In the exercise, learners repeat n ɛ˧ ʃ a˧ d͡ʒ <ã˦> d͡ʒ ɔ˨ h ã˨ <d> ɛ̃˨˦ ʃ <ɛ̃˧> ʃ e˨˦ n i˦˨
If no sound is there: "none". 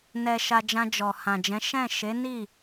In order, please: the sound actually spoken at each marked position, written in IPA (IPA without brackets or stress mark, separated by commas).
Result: ã˧, d͡ʒ, ɛ̃˦˨